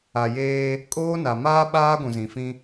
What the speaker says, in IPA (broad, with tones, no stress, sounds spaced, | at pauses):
a˨ j eː˦ | kʼ oː˦ n a˨ m aː˦ ɓ aː˦ ɡʷ ũ˨ z ĩ˨ f ĩ˦